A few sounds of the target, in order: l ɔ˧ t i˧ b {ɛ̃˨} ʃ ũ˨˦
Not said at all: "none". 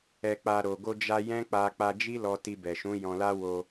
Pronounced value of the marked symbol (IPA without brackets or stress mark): ɛ˨